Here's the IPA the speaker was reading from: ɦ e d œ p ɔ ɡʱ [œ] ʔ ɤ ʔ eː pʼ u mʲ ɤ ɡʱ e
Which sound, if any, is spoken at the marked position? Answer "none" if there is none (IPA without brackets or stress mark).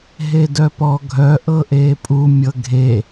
œ